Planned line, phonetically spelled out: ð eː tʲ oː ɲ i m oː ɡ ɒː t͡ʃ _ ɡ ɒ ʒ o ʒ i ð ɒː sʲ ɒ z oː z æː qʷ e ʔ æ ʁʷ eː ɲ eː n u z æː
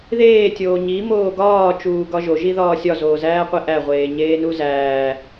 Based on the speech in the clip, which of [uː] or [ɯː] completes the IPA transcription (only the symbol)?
uː